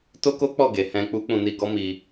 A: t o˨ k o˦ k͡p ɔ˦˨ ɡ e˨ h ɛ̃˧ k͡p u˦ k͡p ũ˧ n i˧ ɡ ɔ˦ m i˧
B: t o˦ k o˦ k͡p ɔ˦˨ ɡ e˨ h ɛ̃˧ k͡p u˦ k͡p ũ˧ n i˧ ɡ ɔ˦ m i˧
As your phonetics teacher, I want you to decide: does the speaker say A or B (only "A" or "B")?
B